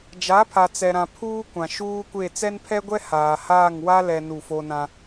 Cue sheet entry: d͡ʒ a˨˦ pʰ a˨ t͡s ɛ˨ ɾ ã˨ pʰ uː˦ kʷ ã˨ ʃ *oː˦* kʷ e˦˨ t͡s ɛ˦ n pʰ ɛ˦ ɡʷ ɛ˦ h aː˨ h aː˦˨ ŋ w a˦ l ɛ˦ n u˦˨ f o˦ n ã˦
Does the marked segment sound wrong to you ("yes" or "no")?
yes